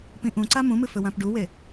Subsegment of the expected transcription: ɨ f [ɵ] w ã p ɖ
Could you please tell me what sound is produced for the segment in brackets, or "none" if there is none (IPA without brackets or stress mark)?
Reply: ɵ